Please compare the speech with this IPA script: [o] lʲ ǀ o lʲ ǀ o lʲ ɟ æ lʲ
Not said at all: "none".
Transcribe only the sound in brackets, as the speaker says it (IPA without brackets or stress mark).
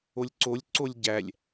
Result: o